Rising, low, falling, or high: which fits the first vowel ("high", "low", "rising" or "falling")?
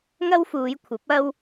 high